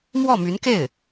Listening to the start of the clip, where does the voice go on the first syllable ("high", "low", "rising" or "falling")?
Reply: falling